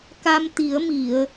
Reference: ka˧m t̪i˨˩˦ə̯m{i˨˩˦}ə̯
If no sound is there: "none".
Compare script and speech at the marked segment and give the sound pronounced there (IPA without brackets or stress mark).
i˨˩˨